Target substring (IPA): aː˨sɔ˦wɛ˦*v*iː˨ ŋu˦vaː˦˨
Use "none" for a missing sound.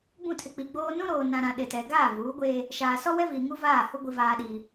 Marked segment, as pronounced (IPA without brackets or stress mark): v